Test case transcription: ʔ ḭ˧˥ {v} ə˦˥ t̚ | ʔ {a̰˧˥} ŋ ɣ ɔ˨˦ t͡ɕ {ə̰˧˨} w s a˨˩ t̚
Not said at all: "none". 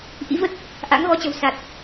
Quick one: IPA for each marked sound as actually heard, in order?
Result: v, a̰˧˥, ə̤˨˩

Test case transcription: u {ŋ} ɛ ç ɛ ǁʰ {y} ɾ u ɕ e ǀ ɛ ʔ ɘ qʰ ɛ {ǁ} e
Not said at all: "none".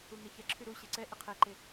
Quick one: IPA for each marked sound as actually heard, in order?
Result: ŋ, y, ǃ

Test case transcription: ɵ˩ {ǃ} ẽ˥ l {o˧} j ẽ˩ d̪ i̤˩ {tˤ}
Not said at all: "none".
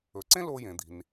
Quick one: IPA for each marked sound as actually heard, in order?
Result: ǀ, o˧, n

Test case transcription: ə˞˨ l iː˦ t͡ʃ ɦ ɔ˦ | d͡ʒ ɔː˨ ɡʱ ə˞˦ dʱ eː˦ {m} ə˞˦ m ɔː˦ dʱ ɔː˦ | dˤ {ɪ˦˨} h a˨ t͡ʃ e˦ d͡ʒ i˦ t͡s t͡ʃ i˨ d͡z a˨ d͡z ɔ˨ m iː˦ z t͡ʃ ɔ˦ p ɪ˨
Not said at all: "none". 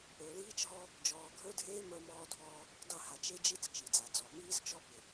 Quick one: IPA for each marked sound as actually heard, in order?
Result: m, ɪ˦˨

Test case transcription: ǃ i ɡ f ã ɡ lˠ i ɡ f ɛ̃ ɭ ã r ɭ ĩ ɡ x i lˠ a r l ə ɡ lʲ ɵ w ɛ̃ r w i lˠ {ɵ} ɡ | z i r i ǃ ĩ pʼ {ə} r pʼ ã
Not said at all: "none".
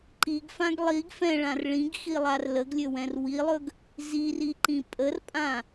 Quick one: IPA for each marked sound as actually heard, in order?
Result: ɵ, ə

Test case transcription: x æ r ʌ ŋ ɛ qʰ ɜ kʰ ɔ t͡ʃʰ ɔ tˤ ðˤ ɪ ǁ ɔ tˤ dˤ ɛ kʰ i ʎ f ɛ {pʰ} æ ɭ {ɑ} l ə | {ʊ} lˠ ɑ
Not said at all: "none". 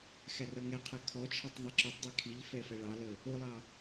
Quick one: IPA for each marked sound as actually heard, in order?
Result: f, ɑ, ʊ

